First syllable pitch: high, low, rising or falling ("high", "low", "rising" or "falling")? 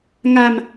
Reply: low